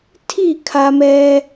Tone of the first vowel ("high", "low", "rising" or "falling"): falling